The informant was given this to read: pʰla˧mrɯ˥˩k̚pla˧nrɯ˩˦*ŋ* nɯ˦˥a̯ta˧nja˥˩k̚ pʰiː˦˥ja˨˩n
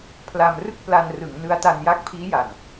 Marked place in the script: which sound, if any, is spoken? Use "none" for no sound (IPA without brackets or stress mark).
ŋ